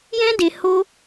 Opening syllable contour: high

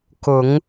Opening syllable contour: low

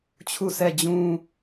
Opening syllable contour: falling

